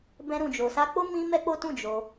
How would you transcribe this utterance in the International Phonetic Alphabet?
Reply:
bɛ̃˧ɾũ˨ d͡ʒo˨ sa˧k͡po˦ mĩ˦mɛ˦k͡po˦tũ˦˨ d͡ʒo˧

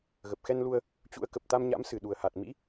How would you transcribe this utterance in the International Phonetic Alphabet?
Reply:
ɣə˨˩p̚xɛ˧nlu˧ə̯ | t͡ɕṵ˧˥ə̯ kə˨˩p̚t̪a˧mɲa̰˧˥m sɨ˨˩ɗu˨˩ə̯ha˨˩t̚mḭ˧˥

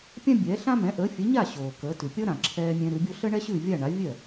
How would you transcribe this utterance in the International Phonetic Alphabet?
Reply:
pʲã˥bʲɛ˩˥ɬã˥ mɛ̃˩˥ ʔəː˩˥fʲœ˩˥ ɲa˥˩ ɕoː˩kəː˩˥tʉ˩ pʲʌ˥ɾã˩ǁʰɛː˧ mʲɛ̃˧ɾʉ˩˥bʲo˥ ɬə˥ɳɛ˥ɕʉ˥˩vʲa˥˩ ɳa˩˥vʲœ˥˩

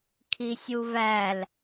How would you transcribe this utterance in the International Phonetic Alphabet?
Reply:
kʰisʲuvæl

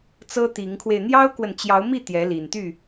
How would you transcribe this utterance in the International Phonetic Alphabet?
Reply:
t͡sɤ˦t̪i˨˦ŋkʰwe˧ɪ̯ n̪jɑ˦ʊ̯kwə˨nt͡ɕjɑ˨˦ʊ̯mi˥˨ t̪jɛ˨˦li˨˩nt̪y˥˨

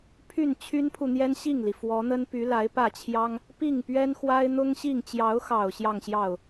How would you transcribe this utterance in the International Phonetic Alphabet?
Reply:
pʰy˥˩nt͡ɕʰy˥npʰu˨n̪jɛ˥n ɕi˥˩ŋli˩ fwɔ˧˥n̪ə˥n py˧˥la˧˥ɪ̯pä˥˩t͡ɕʰjɑ˥ŋ | pi˥˩ŋpɥɛ˥nxwa˥ɪ̯ n̪ʊ˥ŋɕi˥˩ŋ t͡ɕjɑ˧˥ʊ̯xɑ˨˩ʊ̯ ɕjɑ˥˧ŋɕjɑ˥˩ʊ̯

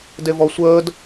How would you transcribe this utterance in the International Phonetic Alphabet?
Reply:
devɔsʷəːd

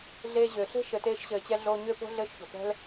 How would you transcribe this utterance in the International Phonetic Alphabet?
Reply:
ɮeː˧ʑʏː˨ɬe̤˦ ʃɘ˨teː˧ʃɕɘː˨t͡ɕɛ˧ ɮoː˧ɲʏː˦po̤˦ ɮɘː˦ʃço̤˨ pɛ̤˦l

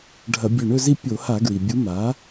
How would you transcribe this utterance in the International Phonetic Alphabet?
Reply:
ɖʱɐ˧˩˧bʲɵ˧˩ɳɵ˥˧zi˥˧ pʲo˧˩˧ha˧˩˧ ɡɹi˩bʲu˧˥ ma˩˥

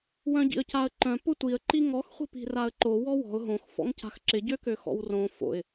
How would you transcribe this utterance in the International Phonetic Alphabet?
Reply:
wœ̃ɟḭə̯caə̯ǃœ̃ pʊtʷiə̯ ǃiŋɔx χʷi̤pi̤raə̯ǃo wɔwɔ̤ʊ̯ ɦõx fɔ̰ŋca̤xǁɪ ɟøkøxɔ̰wrõ fo̰ɪ̯

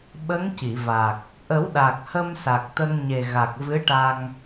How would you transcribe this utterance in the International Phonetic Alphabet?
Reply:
ɓə˧˥ŋ ci˨˩˨ va˨˩k̚ | ʔə˨˩˦wɗa˨˩k̚ hə˧m sa˨˩k̚t̪ə˧ŋɲe˨˩ɣa˨˩k̚ vɨ˧˥ʈa˧ŋ

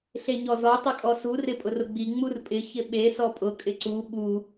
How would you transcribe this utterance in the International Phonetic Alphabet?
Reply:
ɬeɲɔzɔ tˤʊkʼɔsu rɪpʼʊrʊɡ͡bi ŋ͡murpʼɪ çɪɓe sɔpʼʊ kʼɪǀu ɓu

